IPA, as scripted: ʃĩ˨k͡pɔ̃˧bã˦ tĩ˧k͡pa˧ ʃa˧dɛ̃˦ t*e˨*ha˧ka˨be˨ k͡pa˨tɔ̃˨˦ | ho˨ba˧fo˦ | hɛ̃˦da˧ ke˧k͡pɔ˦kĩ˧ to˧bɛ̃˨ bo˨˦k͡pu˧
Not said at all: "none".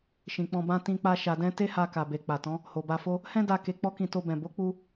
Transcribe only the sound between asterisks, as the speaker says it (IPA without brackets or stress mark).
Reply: e˦